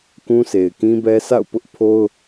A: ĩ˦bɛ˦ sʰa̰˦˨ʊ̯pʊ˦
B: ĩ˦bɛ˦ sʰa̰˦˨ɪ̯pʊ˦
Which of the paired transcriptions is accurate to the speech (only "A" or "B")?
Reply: A